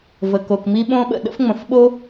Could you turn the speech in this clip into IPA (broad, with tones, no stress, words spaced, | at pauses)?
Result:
və˩ko˩kmi˥ ɓõ˥ɓə̰˩ ɗə̰˥fŋ͡mə̃˩fɓo˥